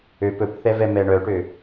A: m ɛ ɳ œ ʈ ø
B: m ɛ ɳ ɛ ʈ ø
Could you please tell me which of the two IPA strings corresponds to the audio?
A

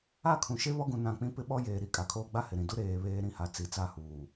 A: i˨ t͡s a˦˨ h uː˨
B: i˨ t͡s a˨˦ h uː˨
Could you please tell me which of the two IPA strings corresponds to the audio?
A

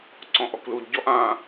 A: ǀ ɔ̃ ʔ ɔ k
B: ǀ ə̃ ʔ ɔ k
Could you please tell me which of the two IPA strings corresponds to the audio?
A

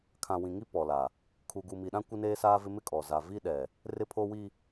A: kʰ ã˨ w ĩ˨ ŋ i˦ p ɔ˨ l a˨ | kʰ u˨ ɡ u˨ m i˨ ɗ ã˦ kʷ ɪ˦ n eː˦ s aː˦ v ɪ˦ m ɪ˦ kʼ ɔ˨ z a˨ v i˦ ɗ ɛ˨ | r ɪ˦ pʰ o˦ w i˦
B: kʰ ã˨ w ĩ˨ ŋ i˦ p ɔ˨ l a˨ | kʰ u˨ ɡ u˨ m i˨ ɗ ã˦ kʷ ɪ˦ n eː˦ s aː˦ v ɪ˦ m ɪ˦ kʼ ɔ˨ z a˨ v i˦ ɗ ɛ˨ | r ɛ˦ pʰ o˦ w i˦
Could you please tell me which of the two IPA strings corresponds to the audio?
A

